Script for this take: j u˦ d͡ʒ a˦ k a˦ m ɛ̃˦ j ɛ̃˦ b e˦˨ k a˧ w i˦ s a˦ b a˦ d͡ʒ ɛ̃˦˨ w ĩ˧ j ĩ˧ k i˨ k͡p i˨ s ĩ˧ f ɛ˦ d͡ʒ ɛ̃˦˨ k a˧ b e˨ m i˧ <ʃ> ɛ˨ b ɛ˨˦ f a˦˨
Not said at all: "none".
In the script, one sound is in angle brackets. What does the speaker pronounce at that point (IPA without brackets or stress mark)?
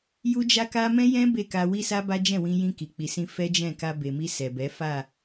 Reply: s